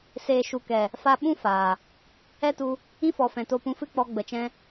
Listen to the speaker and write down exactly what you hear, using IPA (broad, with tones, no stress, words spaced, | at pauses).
seː˨ʃu˨kɛ˨ | fa˧ ɓũ˦ faː˨ | ɛ˦tu˧ | ĩ˦fɔ˨fɛ̃˨to˧ pũ˧fɨ˦k͡pɔ˧ ɡ͡bə˨t͡ʃɛ̃˦